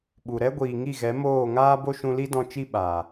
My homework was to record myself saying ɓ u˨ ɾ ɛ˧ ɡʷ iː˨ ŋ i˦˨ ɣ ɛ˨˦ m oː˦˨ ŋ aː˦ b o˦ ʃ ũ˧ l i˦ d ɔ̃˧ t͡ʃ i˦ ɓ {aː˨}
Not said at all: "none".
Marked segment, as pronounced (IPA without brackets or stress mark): aː˨